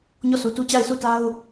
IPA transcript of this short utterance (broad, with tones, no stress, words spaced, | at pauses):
ɲɔ˦˨su˨tu˦ t͡ɕa˦˨ɪ̯su˦˨ta˦ʊ̯